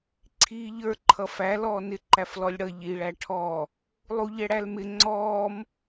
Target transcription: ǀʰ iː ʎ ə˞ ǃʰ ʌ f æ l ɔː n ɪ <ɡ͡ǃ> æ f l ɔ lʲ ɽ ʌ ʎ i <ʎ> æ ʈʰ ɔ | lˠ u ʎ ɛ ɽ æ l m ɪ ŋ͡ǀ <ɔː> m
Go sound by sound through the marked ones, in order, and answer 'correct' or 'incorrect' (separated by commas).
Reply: incorrect, incorrect, correct